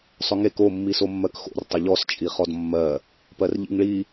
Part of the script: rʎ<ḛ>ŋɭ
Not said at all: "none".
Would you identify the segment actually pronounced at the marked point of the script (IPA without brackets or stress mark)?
ḭ